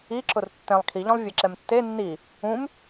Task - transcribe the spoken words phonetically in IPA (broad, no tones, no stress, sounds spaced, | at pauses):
i ǁ ʊ r tː ɛ̃ lˠ kʰ i ʎ ɔ̃ lˠ vʲ e ǁ ɛ m tː e nː i | ũ m